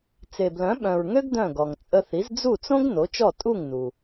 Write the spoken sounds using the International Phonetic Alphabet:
t͡se˩blœ̃˩˥ɓœ̃˩ɹŋø˥ɡ dœ̃˥˩ɡɔ˩ŋ t͡sʼə˧θi˩˥z d͡zu˥˩t͡sõ˥ɡ no˩˥t͡ʃɔ˥˩ tʼu˥˩ŋ nu˩

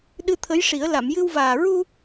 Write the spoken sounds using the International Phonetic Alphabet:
ɗɨ˧t̪ʰə˧˥jʂi˨˩˦ə̯ la˨˩˨mjɨ˧wvaː˨˩ ɹu˧

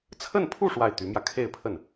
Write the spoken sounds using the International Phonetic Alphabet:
t͡sʰə˥˧npʰu˥˧ ʂwa˥˩ɪ̯t̪y˧˥mjä˧ kʰe˥˧ɪ̯pʰə˥˩n

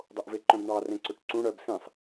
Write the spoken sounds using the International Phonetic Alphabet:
dˤoʔveǃœ̃bɳɑ rẽǀɵʈǀũ ɽœb sĩsˤ

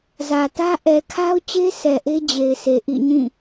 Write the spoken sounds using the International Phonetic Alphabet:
zä˨tä˦ ʔɛ˨kʰa˦ʊ̯t͡ɕe˦ sʰɛ˨ʔe˦ d͡ʑe˨ɪ̯sʰe˨ ʔḭ˦˨ɲĩ˦˨

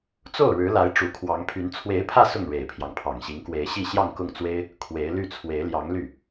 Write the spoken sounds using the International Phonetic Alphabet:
t͡so˥˩ʊ̯ɻɻ̩˧˥la˧˥ɪ̯ ʈ͡ʂu˧˥ kʰwɑ˧˥ŋpʰy˧˥n t͡sʰwe˧˥ɪ̯pʰä˥˧ sʊ˥˩ŋɻe˨˩ɪ̯pʰjɑ˦ŋ pʰɑ˨˩ŋɕi˧˥ŋkwe˧˥ɪ̯ɕi˥˧ ɕjɑ˥˧ŋkʊ˥˩ŋt͡swe˥ɪ̯ | kʰwe˧˥ɪ̯ly˥˩ t͡sʰwe˧˥ɪ̯ljɑ˧˥ŋ ly˥˩

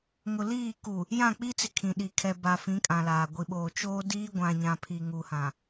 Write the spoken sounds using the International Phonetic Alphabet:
ŋʊ˨liː˦˨ ku˨ | jã˦˨k͡pi˦t͡sɪ˨ kʰĩ˨ɗi˨ kʰɛ˨ ba˨fĩ˨˦ kʼã˨laː˨ ɡʷi˨ɓoː˨ t͡ʃoː˦ diː˦ɡʷã˨ɲã˨ pʰi˨ŋu˨hã˨

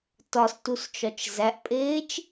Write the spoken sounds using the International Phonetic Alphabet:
tɒstust͡ʃɒt͡ʃ zæʔpʼeːt͡ʃ

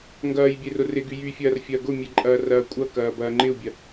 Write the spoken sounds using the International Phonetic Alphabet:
ŋɡɐːj bʲerʊrɪɡy jyfʲɐːr fʲɐːɡʊmʲe ǃʼɐːrɐːkʷʼɐkɐː bɐːŋ͡ǃɪu̯bʲɐ

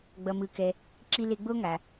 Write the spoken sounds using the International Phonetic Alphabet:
ɡ͡bʌ˨mɯ˨kɛ˨ | ǁi˦le˦ ɡ͡bo˥ŋa˩

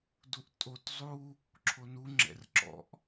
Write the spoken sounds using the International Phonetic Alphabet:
duʔtʼot zˤu | ǁʰonu ŋ͡ǁɛ̰rǁɔ̰ʔ

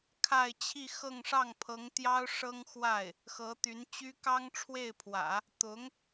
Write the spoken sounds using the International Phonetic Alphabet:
kʰa˥˧ɪ̯t͡ɕʰi˥˧xɤ˥˧ŋ ʂɑ˥˩ŋ pʰɤ˧˥ŋt̪jɑ˥ʊ̯ ʂɤ˥ŋxwa˥˩ɪ̯ | xɤ˧˥t̪y˧˥nt͡ɕy˥ kɑ˥ŋʈ͡ʂʰwe˥˩ɪ̯pʰwä̰˨˩˦ | t̪ʊ˧˥ŋ

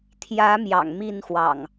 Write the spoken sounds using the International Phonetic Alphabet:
t̪ʰjä˨˦ mjɑ̰˨˩ŋmi˥˨nxwɑ̰˨˩ŋ

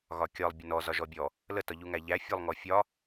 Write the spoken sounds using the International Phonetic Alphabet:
ɣɒkʲɒlˠ bʲənɔ zɒʒɔbʲɔ | lə tɒʎuŋæʎæ fʲɔlˠŋɔfʲɒ

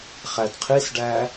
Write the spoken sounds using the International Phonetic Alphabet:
χædqʰisɖæ

